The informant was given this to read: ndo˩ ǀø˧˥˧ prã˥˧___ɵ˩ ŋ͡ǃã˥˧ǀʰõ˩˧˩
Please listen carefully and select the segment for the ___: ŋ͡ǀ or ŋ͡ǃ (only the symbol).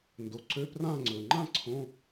ŋ͡ǀ